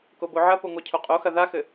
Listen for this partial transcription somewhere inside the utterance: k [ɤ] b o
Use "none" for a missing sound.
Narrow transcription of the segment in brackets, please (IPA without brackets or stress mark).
o